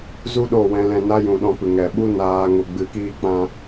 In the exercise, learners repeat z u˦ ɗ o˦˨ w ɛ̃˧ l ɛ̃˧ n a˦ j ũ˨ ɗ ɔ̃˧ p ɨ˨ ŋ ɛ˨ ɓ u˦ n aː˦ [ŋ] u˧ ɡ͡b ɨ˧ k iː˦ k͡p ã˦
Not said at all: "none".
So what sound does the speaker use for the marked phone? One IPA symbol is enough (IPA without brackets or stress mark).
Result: ŋ